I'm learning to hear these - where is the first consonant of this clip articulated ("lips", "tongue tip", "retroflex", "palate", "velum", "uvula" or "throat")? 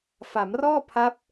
lips